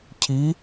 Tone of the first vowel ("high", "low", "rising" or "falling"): rising